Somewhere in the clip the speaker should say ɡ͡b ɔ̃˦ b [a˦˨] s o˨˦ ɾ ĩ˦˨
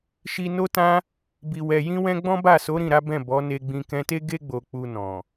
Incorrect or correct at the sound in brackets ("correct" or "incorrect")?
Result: correct